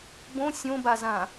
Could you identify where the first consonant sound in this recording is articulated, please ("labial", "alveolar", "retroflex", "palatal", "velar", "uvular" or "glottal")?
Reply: labial